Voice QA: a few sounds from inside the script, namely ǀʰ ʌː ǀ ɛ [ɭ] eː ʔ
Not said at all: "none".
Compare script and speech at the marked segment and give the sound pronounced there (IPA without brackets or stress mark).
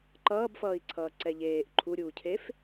ʎ